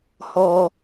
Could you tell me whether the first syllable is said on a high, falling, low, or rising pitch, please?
low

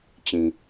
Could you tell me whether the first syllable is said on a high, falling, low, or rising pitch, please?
low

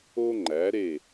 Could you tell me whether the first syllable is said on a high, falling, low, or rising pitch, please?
high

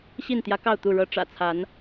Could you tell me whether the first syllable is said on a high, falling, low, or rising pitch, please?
falling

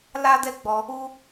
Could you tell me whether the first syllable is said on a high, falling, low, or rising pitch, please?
high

